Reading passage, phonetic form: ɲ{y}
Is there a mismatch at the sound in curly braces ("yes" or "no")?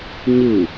yes